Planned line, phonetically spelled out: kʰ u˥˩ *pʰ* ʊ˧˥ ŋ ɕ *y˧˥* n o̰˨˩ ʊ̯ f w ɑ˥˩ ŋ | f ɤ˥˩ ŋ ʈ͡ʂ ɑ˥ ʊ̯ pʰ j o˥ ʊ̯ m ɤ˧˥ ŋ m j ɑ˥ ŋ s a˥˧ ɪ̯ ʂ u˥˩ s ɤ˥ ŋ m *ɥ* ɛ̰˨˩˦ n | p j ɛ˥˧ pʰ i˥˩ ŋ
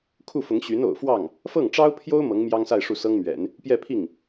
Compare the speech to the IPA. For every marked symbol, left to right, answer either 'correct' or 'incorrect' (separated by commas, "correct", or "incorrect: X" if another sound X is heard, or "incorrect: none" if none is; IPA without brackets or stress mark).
incorrect: f, correct, correct